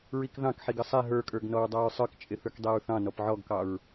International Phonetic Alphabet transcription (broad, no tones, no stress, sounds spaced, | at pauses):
ɹ i k ð ɑ̃ k ħ i ɡ ə sˤ ɛ ɦ ə˞ kʼ ə˞ ɡ n ɔ ɹ dˤ ɑ ɹ sˤ ə˞ k t͡ʃʼ ɪ θ ə˞ k dˤ ɛ ɹ θ ɑ̃ n ɔ p ʕ ɔ ɡ k ɑ ɹ